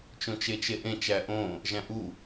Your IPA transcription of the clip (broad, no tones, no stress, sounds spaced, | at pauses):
t͡ʃ õ t͡ʃ e t͡ʃ e ʔ ẽ t͡ʃ æ ʔ õ | ʒ æ̃ ʔ u